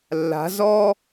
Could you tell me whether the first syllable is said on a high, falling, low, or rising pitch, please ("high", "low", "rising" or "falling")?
rising